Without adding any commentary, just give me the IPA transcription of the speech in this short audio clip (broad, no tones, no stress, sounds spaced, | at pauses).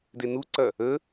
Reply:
d e n u ǀ ɐ | ə